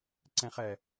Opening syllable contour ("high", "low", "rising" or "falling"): low